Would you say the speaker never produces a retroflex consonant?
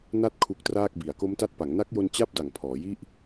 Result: yes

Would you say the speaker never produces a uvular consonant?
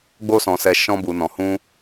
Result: yes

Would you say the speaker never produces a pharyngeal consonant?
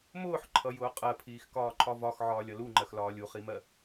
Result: no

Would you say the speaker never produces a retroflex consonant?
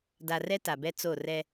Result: yes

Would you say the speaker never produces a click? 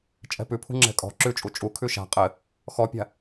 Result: no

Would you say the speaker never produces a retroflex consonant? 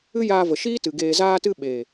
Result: yes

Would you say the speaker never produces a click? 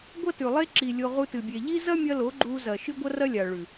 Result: no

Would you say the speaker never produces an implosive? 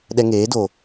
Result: no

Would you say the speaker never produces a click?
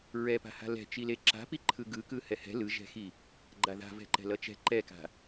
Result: no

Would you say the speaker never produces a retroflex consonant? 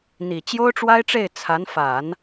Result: no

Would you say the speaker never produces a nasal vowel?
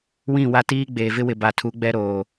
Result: no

